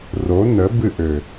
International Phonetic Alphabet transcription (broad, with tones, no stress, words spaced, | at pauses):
ro˨˦nə˨˦ bɨ˦˨ʔø˨